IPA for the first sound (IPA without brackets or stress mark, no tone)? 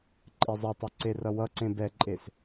ǃʼ